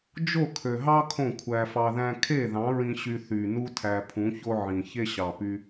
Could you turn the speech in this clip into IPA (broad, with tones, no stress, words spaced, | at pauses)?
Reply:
d͡ʒo˦˨kʰø˨ɦɑ˦ kʰõ˦˨kʷʰæ˧fɑ˧ðæ̃˦ kʰe˦˨ðɑ̃˨˦ɹĩ˧ ɕy˧θy˨nu˦ tʰæ˧pʰũ˨˦ço˦ ʕĩ˨ çe˦ɕɑ˨py˧